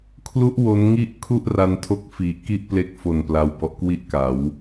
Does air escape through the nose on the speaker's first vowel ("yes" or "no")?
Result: no